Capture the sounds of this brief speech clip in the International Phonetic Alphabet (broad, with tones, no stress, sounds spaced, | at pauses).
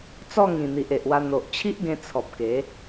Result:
t͡s ɔ˥˧ ŋ ĩ˨˩ n̪ i˨ ʔ e˨ ʔ w a˧ n̪ o˨ ʔ t͡ɕʰ i˦ ʔ ɡ ẽ˧ t͡sʰ ɔ˨ p̚ k e˨˦